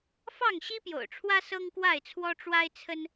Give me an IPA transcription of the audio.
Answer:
f ɑ˥˨ ŋ ɕ i˦ p j o̰˨˩ ʊ̯ ʈ͡ʂʰ w ä˦ s ɤ˦ ŋ k w a˥˨ ɪ̯ t͡sʰ w ɔ˦ ʈ͡ʂ w a˦ ɪ̯ t͡sʰ ə˦ n

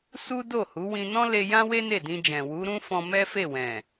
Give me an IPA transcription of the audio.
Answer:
s u˦ d o˦˨ h u˨˦ w ĩ˧ n ɔ̃˦ l e˧ j ã˦ w e˦ n e˦˨ d ĩ˧ d͡ʒ ɛ̃˨ w u˨˦ ɾ ũ˦ f ɔ̃˧ m ɛ˦ f e˦˨ w ɛ̃˨

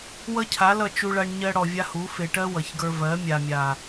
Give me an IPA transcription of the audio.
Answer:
w ʌ˦ cʰ a˨˦ l ʌ˦˨ t͡ʃ u˧ ɭ a˧ ɳ ɲ ɜ˧ ɽ ɔ˨ vʲ a˦ h u˨˦ f e˨ ʈ ɜ˦ w ʌ˨ ç ɡ ə˞˧ v ɜ˨˦ mʲ a˨ mʲ a˨

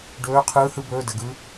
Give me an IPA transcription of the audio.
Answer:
ɖ ɵː˧˥ qʰ ɯː˧˥ h ɯ˧˥˧ b ɵː˧˥˧ d ə˨˩˦ ɡ ɯ˧˥

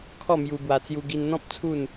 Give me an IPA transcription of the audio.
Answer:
kʰ ɔ˥˧ m j u˧ b w a˧ t͡s j u˧ ɡ i˧ n n̪ ɔ̃˦ p̚ t͡sʰ u˥˧ n

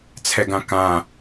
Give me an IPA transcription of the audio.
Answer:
t͡sʰ ɛ ɡ ã k ã

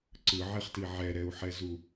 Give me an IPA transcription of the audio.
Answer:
ǀ ɯ ʕ e χ t i ʕ ɛ ɾ ɛ u̯ ħ ɛ z u

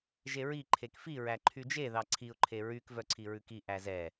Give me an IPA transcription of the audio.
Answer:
ʒ e ɹ i ǃʰ e k f i ɹ æ ǃʰ y d͡ʒ e ð ɑ ǀʰ i ʊ̯ ǃʰ e ɹ y k v œ ǀʰ i ɹ ʉ k i ʔ æ z ɛ

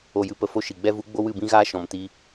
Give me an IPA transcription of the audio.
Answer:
o˨ j ɨ˨ p ə˨ f o˦ ʃ i˨ ɡ͡b ɛ˧ v u˨˦ ɡ͡b o˦ w ɨ˦˨ b ĩ˦ ɣ aː˦ ʃ ɔ̃˨ m t i˧

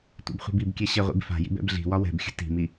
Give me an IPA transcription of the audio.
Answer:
tʷ ḭ b χʷ i̤ b i b kʲ ɛ ɕ ɛ ʁʷ ḭ b f a̤ j ḭ b ɛ̰ b ɮ i̤ w ɒ w ɛ̤ b xʲ ə̤ t i̤ m i

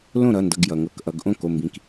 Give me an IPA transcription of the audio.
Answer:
l õ˥˩ ɾ ʌ˩˧˩ n d ʌ˩˧˩ ɡ j ʌ˩ ŋ ɤ˨˥ k ʔ ʌ˩˧ ɡ ʔ õ˥˩ k o˩˧˩ m b ĩ˩˧˩ k

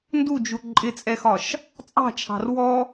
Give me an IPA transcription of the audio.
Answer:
n d u d͡ʒ u ǃʼ ɪ t͡sʼ ɛ x ɒ ʃ | t͡sʼ ɑ̤ t͡ʃʰ ɑ̤ r w ɔ

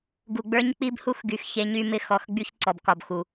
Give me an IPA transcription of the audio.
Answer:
ɡ u˨ ɡ͡b ə˞˦ ɲ k͡p i˦ b h u˦ x ɡ y˨ x ç e˦ ɲ y˦ m ɪ˦ x ɔ˨ x ɡ͡b y˦ ç ǀ ɔ˨ b k ɒ˨ b x u˨

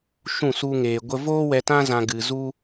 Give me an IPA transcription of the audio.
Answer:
ʃ ũ˦˨ s u˦ ŋ eː˧ ɡʷ ə˦ v oː˦ w ɛ˧ t ã˦ z ã˧ ɡ ɨ˧ z u˦

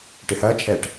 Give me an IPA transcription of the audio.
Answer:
ʈ e h ɐː t͡ʃʰ ɛ ʈ

